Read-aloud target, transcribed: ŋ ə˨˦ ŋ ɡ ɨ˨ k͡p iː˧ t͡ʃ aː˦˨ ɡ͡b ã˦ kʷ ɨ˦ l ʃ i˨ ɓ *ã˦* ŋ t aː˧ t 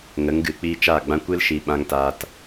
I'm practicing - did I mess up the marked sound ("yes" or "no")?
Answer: yes